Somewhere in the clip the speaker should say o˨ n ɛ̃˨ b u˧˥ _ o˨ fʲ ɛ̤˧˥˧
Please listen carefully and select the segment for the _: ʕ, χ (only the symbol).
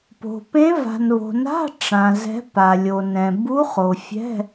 χ